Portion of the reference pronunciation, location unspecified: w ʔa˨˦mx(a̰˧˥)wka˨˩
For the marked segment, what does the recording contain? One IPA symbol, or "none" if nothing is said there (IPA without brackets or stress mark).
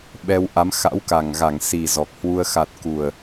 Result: a̰˧˥